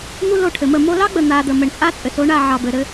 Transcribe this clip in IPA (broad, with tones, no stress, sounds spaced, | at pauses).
n̪ u˦ l o˦˨ ʈʰ ɘ˨ m ə˦˨ m o˧ l ɑ˦ ɡ͡b ə˨ n̪ a˨ d̪ ə˨ m ɘ˨ ɳ t͡sʼ a˦ t͡sʼ ɘ˨ s o˨˦ ɳ a˦˨ ʕ ɑ˨ b ɘ˨ ɾ ɘ˧